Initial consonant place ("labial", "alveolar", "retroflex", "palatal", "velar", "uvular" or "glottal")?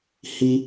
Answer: glottal